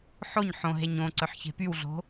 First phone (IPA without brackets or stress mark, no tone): ħ